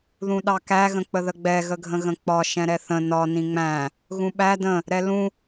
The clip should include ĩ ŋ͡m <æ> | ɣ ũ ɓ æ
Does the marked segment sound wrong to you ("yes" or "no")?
yes